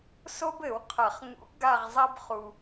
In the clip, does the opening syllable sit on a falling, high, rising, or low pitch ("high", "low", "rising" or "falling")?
high